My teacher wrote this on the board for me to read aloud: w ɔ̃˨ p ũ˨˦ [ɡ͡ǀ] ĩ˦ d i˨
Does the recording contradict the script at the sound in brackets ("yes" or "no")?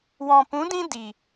yes